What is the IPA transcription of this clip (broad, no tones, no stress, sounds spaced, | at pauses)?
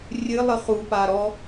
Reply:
rʲ ɨ lˠ ɨ χ u p a ɾ ɔ